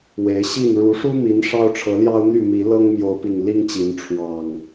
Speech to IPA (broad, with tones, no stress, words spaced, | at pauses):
we˨˦ɪ̯ ɕi˥˨n ɻu˨˦ʂu˦mi˨˦n ʂɑ˦ʊ̯ʈ͡ʂʰɤ˨˦ljɑ˦ʊ̯n̪y˥˨ mi˨˦lɤ˦ŋ mjo˨˦ʊ̯pi˨˩ŋ li˦ŋt͡ɕi˨˦n ʈ͡ʂʰwɑ˨˩ŋ